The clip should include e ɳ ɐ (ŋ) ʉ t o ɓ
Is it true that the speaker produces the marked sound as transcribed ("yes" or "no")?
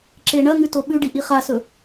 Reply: yes